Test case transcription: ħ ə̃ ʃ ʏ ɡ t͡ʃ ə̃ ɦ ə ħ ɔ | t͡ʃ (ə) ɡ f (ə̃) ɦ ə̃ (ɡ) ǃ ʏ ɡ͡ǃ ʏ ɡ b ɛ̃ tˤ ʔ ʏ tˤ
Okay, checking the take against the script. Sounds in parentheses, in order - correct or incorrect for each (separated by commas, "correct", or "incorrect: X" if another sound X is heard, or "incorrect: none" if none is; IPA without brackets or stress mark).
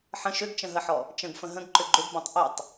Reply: incorrect: ə̃, correct, correct